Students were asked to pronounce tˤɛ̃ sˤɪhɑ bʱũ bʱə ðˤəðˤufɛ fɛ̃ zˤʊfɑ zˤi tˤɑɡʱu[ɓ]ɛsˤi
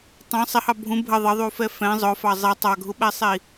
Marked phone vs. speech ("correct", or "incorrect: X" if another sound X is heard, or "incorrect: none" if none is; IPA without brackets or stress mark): correct